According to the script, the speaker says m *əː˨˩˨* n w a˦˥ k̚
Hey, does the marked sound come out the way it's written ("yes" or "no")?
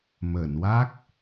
yes